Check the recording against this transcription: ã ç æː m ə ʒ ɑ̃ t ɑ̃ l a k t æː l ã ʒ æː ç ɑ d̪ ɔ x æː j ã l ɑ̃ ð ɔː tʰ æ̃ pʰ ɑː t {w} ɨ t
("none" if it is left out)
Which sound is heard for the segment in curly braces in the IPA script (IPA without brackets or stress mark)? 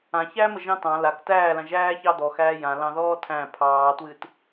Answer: w